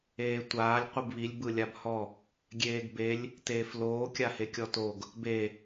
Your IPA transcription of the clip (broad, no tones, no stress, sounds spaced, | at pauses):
eː tʷ aː lʲ qʷ ɯ b β i lʲ b ɯ lʲ a b h ɔ | ɡʲ eː ɡ b e lʲ | t eː f l oː kʲ a h e kʲ ɔ t o ɡ | b e